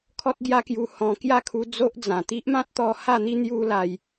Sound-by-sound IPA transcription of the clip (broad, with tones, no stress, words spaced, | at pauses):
kʰɔ˦t̚ɡja˦kju˧ hɔ̃˧ kja˥˧kʰu˧ d͡zo˦ʔd͡zã˨˩ t̪i˦ʔmã˦t̚t̪ɔ˧ ha˥˧n̪i˦ n̪ju˦la˧j